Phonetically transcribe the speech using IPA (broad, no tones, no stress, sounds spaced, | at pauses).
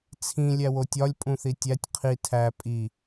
t͡sʰ ĩ lʲ æ w o tʲ ɒ lʲ pʼ ũ θ i tʲ æ tʲ qʰ i tʰ æ pʼ i